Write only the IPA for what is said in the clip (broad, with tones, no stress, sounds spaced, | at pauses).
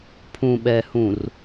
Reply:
pʰ ũ˨ ɓ ɛ˨ h ũ˨ r